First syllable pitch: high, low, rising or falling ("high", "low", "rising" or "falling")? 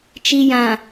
low